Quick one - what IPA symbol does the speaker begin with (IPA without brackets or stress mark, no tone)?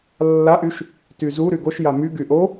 lː